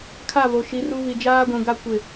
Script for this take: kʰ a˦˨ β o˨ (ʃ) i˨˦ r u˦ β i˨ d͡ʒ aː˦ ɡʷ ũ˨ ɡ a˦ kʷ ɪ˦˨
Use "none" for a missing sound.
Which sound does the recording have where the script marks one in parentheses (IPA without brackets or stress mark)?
ʃ